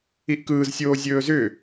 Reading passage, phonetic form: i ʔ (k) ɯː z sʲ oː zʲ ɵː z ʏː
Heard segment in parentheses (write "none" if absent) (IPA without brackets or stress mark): k